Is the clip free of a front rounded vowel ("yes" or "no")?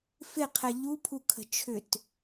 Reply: no